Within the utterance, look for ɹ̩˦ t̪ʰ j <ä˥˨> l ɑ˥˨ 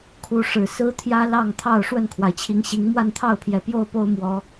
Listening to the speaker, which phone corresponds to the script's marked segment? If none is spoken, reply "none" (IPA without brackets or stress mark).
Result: ä˦